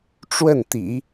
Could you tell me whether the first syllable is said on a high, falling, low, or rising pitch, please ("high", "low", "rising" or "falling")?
falling